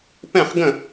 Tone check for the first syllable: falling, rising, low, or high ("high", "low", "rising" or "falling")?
falling